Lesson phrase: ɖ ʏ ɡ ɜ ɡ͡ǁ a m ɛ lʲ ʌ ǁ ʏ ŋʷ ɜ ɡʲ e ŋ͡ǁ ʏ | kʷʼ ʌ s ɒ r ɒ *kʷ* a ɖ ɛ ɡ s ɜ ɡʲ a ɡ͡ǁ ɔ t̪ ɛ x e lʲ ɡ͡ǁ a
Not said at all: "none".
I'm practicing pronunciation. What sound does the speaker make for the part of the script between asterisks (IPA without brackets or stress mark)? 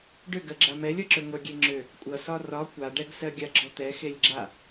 kʷ